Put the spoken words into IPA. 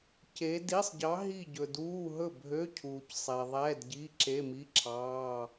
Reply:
c e˧˥ d i˧˥˧ sˤ ɟ ɑ˧˥ ɦ i˥˨ ɟ ɵ˨ d uː˧˥˧ ɦ ɵ˥˨ bʱ ø˧˥˧ cʰ uː˨ c sˤ e˨ ðˤ ɛː˧˥˧ d ɟ i˧˥˧ ǁ e˧˥˧ m i˧˥˧ ǁʰ ɑː˧˥˧

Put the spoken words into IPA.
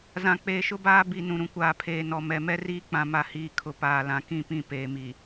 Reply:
z ã˨ k͡p eː˨ ʃ ʊ˦ b aː˦ b i˨ n ũ˨ ɾ ũ˨ kʷ aː˨ pʰ eː˨ n ɔ˨ m ɛ˨ m ɛ˦ r iː˦ k͡p ã˨ m a˨ h iː˨ kʰ ʊ˨ p aː˨ l ã˨ k ĩ˦˨ p ĩ˦˨ p eː˨ m i˨

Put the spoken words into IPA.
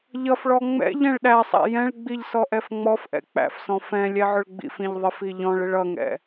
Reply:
ʎ ʌ f ɭ ɔ ŋ͡m ɛ̰ ʎ ɛ̃ ɭ ɗ æ sˤ æ̰ j ɛ̃ ɭ ɡ͡b i ʎ s ɔ ʔ ɛ f ŋ͡m ɔ f ʔ ɛ̰ k͡p æ̰ f s ɔ̃ f ɛ̃ lʲ ɛ ʕ ʊ ɭ ɡ͡b ḭ f ĩ ʎ ðˤ ɪ f i ʎ ɔ̃ ɭ ɪ ɭ ʌ ŋ ɛ̰

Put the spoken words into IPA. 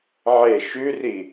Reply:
ʕ e ʃ ʉ r i

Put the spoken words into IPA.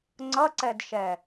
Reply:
ŋ͡ǀ ʌ ǀ ɛ d ʃ ɛ

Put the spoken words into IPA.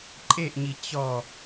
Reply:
ǃʼ e ʔ ɲ i t͡ɕ ɔ

